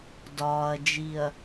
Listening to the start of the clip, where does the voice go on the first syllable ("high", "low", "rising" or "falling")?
low